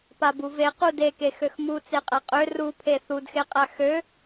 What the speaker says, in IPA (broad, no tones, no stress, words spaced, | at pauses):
pabuve qudeke xøxmu t͡seqʼaqʼø rupʰe θudxeqʼa xø